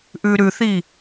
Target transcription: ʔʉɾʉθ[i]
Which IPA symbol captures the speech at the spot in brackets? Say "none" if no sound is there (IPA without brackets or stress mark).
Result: i